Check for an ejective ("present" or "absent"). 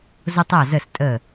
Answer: present